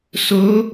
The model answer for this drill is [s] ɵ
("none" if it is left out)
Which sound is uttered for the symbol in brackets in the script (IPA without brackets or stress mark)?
s